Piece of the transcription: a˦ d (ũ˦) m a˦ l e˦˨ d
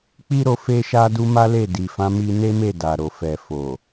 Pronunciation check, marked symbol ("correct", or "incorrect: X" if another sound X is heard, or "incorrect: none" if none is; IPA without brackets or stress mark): incorrect: u˦